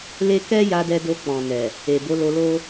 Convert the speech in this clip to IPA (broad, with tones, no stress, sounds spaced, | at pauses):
l e˦ k ɛ˦ j a˧ d ɛ˧ d o˧ k͡p ɔ̃˨ n ɛ˨ | e˨ b o˨˦ l o˧ l o˦